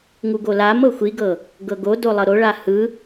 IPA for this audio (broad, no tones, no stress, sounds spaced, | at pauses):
ŋ u ɡ o l a m ɤ xʷ i ɡ ɤ | ɡ ɤ ɡ o d o lˠ ɤ ɾ o ɭ a h ɯ